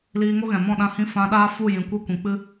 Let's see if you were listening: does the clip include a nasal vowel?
yes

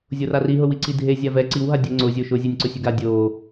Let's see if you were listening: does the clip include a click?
yes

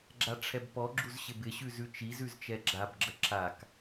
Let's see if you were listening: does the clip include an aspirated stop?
yes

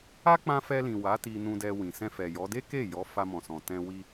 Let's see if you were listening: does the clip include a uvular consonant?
no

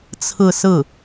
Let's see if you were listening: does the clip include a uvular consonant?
no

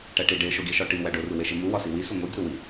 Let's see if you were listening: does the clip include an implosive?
no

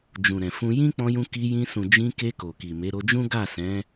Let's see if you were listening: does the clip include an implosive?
no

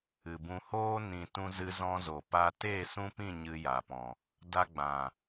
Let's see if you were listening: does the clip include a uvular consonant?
no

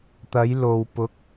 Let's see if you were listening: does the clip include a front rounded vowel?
no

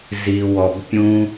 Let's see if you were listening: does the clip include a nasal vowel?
yes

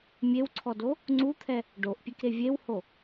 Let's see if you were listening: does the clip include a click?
yes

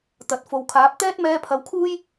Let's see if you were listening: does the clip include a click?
no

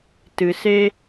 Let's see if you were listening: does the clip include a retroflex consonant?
no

